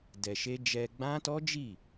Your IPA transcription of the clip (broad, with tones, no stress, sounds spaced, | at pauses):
d ɛ˧ ʃ e˦ d͡ʒ ɛ˧ ɡ͡b ã˦ t ɔ˦ d͡ʒ i˦˨